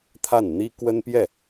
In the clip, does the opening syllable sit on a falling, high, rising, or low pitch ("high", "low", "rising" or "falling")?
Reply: falling